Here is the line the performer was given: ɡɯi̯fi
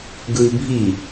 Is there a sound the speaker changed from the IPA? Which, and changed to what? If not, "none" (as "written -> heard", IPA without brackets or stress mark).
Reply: f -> bʱ